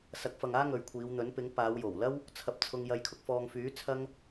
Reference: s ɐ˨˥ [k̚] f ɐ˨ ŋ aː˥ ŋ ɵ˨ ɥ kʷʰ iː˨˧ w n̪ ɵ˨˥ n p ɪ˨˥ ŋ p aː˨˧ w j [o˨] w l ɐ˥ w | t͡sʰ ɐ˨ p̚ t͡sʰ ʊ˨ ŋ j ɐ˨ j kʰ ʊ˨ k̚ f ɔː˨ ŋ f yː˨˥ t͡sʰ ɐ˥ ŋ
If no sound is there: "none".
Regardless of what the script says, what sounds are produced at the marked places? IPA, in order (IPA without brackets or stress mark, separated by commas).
k̚, o˨˩